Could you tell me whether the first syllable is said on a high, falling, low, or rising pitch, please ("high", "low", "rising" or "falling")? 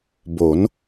rising